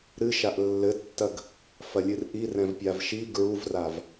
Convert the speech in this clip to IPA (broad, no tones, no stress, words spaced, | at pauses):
ɾɨ ʃaʔlːɘtːɐɡ | fɐlʲɨrʔi rɛ̃vpʲavʃi ɡɹuvrav